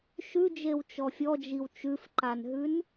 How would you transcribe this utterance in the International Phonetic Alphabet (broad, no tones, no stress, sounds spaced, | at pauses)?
ʃ ʉ d͡ʒ e w t͡ʃ ɔ fʲ ɔ d͡ʒ i w t͡ʃ ʉ f ǃ a n ɦ ʉ n